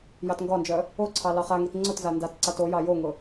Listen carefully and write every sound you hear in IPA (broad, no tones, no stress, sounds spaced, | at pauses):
j ɑ t ŋ ɡ ɒ n d͡ʒ œ | o ǀʰ ɑ l ɑ χ a ŋ i t ŋ͡ǀ ʊ t z a n d a t ǀ a t o j ɑ j o ŋ ʊ